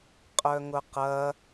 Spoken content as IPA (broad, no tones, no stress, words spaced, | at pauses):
qʼœŋʊqɐ